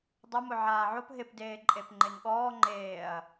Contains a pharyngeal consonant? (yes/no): yes